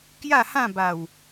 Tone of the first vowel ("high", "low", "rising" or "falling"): falling